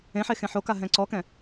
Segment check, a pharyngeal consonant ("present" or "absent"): present